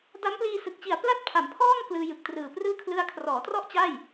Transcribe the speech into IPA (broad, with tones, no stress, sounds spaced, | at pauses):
d a˦˥ m p l iː˧ s ɯ˨˩ k̚ t͡ɕ i˨˩ a̯ p l a˥˩ t̚ pʰ a˩˦ m pʰ ɔː˥˩ ŋ k l ɯː˧ j ɯ˨˩ k̚ t r ɯː˨˩ p r ɯː˥˩ kʰ l ɯ˦˥ a̯ kʰ r ɔː˩˦ t r ɔ˥˩ ʔ t͡ɕ a˥˩ j